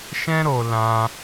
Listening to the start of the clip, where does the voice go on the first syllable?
high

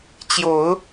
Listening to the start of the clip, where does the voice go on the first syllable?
low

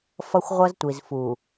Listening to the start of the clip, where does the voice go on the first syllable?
high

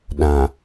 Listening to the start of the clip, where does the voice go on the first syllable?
low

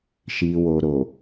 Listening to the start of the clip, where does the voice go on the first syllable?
low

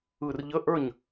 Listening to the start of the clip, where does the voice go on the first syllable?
low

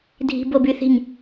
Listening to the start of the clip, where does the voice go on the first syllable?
high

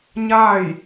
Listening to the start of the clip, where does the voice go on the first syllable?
falling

